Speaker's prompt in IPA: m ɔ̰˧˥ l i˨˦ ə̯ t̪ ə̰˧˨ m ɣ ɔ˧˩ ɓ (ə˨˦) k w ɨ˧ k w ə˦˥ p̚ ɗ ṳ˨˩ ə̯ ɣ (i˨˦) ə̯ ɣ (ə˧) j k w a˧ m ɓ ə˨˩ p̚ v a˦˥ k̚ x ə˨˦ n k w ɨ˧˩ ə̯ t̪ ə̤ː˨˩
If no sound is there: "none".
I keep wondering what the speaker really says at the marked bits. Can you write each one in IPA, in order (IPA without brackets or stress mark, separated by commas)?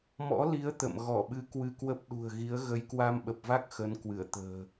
ɨ˨˦, i˨˦, ə˨˦